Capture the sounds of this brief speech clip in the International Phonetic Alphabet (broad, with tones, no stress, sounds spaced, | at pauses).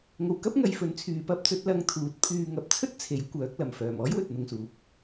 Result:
ŋ o˨ w k ɐ˥ p̚ ŋ ɐ˨˧ j f ɵ˨˥ n t͡sʰ yː˨ p ɐ˥ p̚ t͡s ɵ˨˥ t̚ l ɐ˧ ŋ t̪ʰ uː˨˥ t̚ pʰ yː˧ ŋ ɐ˨˥ p̚ t͡sʰ ɵ˥ t̚ t͡sʰ e˨˥ j kʷ œː˨˥ k̚ l ɐ˨˩ m f œː˨˩ m ɔː˥ j w ɵ˨ t̚ n̪ ʊ˨ ŋ s uː˨˥ p̚